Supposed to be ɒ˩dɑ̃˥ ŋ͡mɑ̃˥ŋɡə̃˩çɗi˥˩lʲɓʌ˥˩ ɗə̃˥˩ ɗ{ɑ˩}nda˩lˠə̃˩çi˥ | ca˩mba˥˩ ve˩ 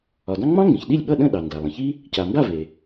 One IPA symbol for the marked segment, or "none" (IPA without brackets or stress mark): ɑ˩